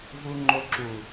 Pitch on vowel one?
low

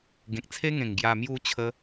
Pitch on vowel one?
low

